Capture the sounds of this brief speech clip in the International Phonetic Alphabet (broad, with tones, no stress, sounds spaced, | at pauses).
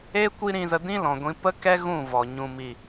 e˦ kʷ i˦ ɾ ĩ˧ z ə˧ d ĩ˦ l ɔ̃˨ ɡʷ ĩ˧ p ə˦ k ɛ˦ ɣ ũ˦˨ v ɔ˨ ɲ ũ˨ m i˨